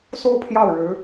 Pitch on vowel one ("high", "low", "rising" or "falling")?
high